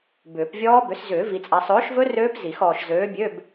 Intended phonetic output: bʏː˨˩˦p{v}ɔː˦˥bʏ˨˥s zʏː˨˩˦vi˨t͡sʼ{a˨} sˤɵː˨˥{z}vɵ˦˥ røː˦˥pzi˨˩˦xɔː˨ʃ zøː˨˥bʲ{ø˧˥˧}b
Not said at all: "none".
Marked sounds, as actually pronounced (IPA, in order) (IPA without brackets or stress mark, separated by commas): vʲ, a˨, ʃ, ø˧˥˧